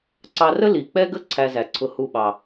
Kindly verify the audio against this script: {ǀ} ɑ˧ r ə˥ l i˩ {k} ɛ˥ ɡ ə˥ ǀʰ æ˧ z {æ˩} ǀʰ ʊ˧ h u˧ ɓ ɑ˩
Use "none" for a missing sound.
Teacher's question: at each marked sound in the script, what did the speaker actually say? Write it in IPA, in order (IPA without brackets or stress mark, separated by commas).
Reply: ǀ, k͡p, æ˩